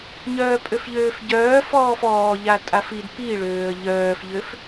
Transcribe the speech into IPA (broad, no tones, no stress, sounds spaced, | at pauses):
ɲ œː pʼ ø f ʎ øː f ɟ œː f ɔː f ɔː ʎ a tʼ a f i d p i ɭ øː ə̯ ʎ œː f ʎ ø f